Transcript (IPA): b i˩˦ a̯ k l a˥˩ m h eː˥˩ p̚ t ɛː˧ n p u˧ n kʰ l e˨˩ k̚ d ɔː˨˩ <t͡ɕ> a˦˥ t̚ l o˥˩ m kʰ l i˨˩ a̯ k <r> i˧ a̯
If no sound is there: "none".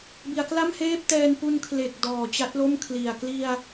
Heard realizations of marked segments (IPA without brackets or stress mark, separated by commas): t͡ɕ, l